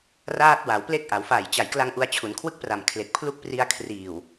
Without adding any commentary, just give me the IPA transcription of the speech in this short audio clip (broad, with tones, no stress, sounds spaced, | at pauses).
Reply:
r aː˦˥ t̚ w a˩˦ w p l e˦˥ k̚ ʔ a˩˦ w f a˨˩ j t͡ɕ a˨˩ j k l a˧ ŋ ʔ u˧ a̯ t͡ɕʰ u˩˦ n kʰ w ɯ˥˩ k̚ p r a˨˩ m kʰ l e˨˩ k̚ pʰ l u˦˥ k̚ p r i˧ a̯ kʰ r iː˨˩ w